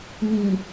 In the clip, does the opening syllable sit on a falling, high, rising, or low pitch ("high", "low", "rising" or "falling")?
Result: low